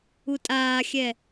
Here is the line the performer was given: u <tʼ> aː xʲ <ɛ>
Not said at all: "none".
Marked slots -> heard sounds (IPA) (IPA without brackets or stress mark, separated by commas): tʼ, ɛ